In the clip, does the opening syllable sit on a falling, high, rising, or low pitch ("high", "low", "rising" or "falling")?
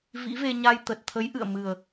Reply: rising